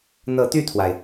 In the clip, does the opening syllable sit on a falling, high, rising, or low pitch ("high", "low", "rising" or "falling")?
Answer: rising